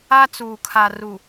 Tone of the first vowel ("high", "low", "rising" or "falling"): high